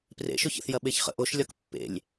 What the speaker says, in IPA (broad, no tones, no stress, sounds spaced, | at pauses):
p r ḛ ʃ ʊ ç ə̰ θ j ɐ ɓ e ç χ ə̰ ʔ o ʃ lʲ ɒ k pː ḛ lʲ